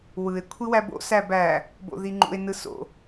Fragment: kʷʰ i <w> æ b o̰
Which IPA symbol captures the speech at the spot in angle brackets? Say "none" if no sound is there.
w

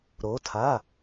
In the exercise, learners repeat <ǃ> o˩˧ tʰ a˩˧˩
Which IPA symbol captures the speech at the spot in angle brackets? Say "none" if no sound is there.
ɾ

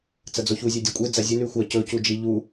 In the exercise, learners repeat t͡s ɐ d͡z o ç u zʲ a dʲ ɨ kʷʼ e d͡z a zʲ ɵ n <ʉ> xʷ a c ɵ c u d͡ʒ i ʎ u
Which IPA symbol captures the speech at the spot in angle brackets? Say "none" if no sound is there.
ʉ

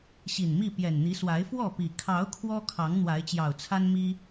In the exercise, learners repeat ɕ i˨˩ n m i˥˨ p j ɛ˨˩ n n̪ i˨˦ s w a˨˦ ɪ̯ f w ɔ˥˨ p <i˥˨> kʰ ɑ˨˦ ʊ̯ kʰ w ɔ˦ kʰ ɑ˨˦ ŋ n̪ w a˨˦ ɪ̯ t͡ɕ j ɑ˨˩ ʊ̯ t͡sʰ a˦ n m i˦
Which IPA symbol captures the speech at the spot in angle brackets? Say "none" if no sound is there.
i˨˩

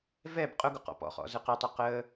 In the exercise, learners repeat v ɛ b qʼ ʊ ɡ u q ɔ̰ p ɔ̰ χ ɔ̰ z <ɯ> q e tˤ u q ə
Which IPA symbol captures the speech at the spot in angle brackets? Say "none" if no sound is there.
ɯ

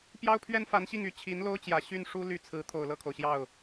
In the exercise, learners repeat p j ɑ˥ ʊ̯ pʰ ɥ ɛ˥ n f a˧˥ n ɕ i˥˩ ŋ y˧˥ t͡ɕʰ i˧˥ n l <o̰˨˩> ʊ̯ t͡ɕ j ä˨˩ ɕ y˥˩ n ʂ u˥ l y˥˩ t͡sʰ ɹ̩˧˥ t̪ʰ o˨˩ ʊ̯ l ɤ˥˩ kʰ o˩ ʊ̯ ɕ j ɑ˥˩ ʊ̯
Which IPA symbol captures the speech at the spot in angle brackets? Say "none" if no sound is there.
o˥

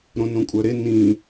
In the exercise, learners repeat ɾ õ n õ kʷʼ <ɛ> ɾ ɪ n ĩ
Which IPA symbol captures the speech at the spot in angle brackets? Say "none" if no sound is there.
œ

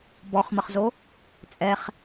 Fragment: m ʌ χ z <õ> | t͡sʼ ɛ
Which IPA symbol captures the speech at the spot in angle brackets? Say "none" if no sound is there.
o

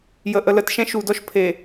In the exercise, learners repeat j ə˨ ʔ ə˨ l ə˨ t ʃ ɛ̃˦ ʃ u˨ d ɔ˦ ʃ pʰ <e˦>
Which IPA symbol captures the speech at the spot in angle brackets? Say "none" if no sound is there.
e˨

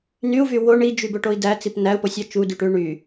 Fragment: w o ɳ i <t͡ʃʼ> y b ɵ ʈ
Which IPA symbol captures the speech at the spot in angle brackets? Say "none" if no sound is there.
d͡ʒ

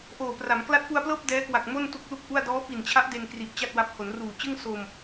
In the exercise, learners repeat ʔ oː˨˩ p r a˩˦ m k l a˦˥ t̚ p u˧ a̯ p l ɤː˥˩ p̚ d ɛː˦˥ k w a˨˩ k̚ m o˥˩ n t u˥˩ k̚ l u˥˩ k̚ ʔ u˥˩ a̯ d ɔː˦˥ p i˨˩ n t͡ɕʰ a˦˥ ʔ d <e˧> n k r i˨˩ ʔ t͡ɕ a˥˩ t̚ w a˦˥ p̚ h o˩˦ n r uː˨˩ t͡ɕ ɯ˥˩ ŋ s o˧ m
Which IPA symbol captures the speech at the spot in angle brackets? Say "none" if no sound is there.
e˧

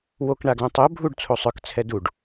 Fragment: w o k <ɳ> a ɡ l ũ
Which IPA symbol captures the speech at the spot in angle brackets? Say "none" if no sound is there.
ɳ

